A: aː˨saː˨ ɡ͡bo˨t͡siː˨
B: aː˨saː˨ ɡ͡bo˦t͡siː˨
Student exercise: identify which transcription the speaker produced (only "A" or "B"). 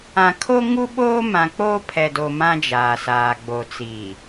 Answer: A